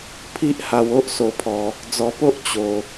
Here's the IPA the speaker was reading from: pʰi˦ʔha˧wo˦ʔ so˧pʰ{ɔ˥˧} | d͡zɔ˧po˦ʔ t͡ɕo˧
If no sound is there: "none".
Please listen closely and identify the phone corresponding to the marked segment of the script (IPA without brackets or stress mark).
ɔ˧